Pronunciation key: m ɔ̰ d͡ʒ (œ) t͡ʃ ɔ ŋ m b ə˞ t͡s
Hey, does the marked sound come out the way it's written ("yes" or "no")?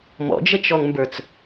no